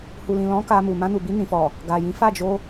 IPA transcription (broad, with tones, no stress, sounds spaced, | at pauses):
h u˨ l ĩ˨ l ɔ̃˨˦ k a˧ m u˨ m ã˧ n u˨ b i˧ n ĩ˨ f ɔ˨ | ɡ a˨ j ĩ˨˦ f a˦˨ d͡ʒ o˧